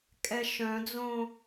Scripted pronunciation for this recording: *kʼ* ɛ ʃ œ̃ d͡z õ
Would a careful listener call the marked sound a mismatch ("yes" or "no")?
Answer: no